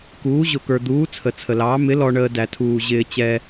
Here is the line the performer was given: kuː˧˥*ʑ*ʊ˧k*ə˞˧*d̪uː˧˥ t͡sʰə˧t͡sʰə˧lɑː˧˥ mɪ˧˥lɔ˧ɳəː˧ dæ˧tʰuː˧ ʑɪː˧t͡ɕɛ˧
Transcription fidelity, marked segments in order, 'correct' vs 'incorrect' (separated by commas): correct, correct